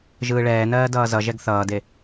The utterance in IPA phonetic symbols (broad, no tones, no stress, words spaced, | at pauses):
ʒɯːɭɛːnɜː dʌːzʌʒɛɡ θʌːde